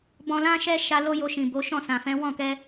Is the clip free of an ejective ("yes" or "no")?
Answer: yes